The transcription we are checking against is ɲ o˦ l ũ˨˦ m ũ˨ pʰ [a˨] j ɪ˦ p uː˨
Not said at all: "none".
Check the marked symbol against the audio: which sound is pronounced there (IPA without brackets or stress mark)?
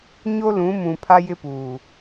a˦